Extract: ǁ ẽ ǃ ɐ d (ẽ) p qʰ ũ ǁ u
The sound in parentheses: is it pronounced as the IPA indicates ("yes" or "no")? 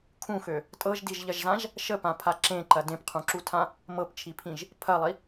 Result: yes